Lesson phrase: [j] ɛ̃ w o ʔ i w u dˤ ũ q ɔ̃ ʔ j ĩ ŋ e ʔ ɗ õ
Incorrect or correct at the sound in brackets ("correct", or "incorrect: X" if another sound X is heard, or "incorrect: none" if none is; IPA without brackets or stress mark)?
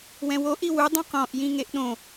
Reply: incorrect: w